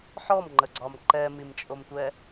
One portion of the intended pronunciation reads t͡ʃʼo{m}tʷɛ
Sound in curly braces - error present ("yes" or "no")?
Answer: no